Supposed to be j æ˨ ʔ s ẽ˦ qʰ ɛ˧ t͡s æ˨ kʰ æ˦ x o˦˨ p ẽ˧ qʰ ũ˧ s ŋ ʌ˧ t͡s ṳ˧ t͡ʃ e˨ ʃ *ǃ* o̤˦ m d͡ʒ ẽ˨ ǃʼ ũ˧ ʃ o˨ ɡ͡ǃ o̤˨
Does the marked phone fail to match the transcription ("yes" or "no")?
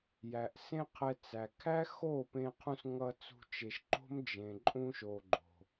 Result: no